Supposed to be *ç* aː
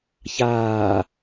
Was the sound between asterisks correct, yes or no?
yes